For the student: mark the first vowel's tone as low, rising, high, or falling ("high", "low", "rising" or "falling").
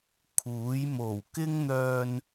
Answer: rising